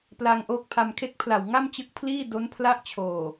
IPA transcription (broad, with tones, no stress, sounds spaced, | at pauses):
p l a˧ ŋ ʔ oː˦˥ k̚ pʰ a˧ m kʰ e˥˩ k̚ pʰ l a˨˩ w ŋ a˥˩ m t͡ɕ ɯ˦˥ k̚ pʰ l iː˥˩ d o˦˥ n pʰ l a˥˩ ʔ t͡ɕʰ oː˨˩